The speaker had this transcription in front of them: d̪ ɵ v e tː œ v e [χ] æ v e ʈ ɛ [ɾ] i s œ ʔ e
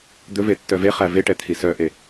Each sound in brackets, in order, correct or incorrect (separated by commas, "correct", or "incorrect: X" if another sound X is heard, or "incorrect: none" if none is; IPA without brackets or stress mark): correct, incorrect: t̪ʰ